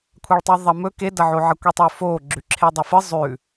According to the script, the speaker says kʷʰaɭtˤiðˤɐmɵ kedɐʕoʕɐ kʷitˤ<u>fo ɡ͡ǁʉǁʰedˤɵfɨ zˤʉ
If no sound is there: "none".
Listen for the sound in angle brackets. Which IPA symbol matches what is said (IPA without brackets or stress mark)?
ʉ